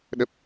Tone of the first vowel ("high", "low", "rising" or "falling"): low